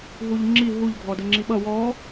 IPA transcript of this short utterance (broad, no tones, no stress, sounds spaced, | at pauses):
ɦ u ʎ ŋ͡ǁ i ɦ u ʎ ɡʱ ɔ d ə ŋ͡ǁ i ɓ ʌ w ɔ